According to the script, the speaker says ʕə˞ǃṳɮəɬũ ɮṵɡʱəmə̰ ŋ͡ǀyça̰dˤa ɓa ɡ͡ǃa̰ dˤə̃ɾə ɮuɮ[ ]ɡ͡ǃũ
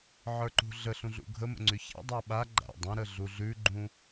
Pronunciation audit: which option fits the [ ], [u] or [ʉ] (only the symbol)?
ʉ